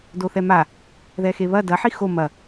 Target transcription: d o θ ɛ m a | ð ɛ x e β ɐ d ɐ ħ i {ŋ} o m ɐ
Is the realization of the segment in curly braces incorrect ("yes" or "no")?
yes